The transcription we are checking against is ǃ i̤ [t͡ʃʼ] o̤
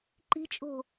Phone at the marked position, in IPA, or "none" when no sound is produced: t͡ʃʼ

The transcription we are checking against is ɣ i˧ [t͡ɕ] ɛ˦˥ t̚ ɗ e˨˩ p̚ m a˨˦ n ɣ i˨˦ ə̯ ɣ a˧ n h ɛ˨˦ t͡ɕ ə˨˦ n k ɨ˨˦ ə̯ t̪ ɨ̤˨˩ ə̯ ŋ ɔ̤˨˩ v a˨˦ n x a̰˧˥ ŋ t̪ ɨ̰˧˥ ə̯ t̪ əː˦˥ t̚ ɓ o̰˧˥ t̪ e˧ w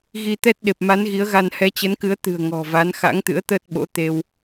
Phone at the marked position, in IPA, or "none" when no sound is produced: t̪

